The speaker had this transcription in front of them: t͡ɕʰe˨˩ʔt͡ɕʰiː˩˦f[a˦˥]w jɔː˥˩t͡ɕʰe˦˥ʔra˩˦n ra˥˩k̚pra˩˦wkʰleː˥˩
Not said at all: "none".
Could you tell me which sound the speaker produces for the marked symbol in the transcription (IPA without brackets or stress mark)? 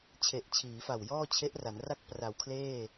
a˨˩